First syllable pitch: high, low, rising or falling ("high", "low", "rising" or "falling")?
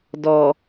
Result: low